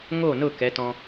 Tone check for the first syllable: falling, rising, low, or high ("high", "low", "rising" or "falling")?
falling